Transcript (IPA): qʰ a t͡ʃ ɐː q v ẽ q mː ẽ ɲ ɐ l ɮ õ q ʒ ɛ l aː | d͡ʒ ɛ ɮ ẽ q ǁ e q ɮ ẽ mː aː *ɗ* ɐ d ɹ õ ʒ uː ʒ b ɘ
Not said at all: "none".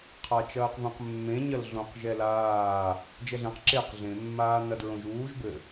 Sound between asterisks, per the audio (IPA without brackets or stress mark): n